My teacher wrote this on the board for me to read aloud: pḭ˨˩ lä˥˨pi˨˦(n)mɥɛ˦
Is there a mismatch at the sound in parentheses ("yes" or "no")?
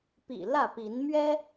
no